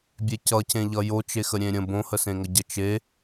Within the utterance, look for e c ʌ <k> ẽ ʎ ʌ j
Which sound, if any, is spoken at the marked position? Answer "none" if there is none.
c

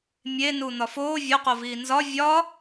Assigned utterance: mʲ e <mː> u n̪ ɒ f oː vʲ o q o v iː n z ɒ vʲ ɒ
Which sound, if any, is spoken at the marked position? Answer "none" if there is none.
n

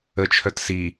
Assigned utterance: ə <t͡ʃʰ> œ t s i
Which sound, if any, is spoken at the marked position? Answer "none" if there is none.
t͡ʃʰ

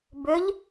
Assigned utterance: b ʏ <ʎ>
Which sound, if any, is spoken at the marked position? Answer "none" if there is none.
ʎ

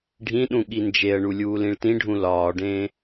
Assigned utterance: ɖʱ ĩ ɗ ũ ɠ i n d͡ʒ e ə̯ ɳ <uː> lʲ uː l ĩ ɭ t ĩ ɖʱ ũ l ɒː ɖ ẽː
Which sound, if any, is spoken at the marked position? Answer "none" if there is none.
u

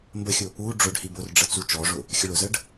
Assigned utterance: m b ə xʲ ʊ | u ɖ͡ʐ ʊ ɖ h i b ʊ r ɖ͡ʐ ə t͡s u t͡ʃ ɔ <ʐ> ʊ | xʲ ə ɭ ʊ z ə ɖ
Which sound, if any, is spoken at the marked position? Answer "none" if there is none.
ʐ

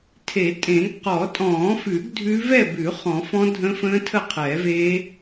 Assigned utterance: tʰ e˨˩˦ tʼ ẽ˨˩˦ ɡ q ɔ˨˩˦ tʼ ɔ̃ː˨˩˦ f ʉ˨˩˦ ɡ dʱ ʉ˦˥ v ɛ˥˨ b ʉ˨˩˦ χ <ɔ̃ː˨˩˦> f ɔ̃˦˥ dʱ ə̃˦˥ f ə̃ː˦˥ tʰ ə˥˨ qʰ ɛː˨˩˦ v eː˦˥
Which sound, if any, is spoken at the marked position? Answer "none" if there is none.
ɔ̃˨˩˦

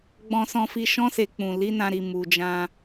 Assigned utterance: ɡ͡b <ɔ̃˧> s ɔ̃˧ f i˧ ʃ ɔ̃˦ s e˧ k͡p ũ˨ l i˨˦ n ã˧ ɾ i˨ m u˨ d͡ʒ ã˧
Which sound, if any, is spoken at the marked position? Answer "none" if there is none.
ɔ̃˧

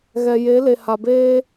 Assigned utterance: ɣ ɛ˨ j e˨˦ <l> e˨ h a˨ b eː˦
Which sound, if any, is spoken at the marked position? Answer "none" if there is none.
l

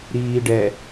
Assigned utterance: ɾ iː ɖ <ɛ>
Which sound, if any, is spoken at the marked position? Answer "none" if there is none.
ɛ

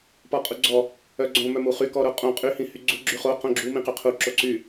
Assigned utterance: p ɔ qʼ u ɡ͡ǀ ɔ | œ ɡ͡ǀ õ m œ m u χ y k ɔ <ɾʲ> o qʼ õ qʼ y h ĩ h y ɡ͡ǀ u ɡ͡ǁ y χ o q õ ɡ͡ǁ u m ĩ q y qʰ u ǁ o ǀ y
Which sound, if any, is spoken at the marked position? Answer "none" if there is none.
ɾ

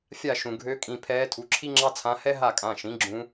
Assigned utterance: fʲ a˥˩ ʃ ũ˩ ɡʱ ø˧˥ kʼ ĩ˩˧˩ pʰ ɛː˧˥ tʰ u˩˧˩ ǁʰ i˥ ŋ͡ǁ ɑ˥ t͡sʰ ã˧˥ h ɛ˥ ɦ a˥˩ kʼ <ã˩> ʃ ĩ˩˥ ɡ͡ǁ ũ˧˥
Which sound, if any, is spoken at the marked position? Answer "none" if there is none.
ã˩˧˩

